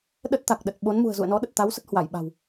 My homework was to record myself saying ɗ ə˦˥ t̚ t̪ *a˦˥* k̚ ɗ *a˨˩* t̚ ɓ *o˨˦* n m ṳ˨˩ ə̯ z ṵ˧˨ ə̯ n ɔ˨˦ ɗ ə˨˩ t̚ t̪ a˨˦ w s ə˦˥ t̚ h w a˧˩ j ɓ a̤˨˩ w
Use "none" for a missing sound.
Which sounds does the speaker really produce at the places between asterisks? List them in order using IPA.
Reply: a˨˩, ə˨˩, o˨˦

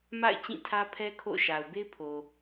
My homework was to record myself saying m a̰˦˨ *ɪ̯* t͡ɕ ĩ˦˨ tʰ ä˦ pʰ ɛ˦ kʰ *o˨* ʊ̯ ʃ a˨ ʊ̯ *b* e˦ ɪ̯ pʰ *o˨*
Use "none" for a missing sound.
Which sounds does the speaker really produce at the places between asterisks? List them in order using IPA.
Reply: ɪ̯, o̰˦˨, b, o˨

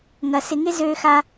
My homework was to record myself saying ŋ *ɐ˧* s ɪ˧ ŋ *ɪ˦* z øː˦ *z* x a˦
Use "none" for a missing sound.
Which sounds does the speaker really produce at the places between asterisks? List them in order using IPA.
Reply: ɐ˧, ɪ˦, none

